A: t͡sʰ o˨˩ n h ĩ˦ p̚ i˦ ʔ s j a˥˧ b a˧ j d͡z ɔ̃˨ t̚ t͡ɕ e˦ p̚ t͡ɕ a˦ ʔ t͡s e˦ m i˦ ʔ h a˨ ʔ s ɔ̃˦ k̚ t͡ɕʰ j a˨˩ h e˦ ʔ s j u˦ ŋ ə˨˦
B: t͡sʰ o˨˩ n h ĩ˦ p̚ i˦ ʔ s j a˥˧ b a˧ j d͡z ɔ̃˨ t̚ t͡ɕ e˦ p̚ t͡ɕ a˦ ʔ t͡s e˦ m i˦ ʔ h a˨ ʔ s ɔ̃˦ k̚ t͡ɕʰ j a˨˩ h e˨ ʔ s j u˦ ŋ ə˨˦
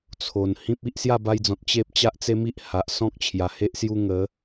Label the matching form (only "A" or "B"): A